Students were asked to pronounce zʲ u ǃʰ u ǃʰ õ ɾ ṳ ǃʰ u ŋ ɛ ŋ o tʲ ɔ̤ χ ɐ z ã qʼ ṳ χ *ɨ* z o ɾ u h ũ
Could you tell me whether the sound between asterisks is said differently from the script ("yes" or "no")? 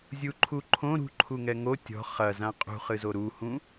no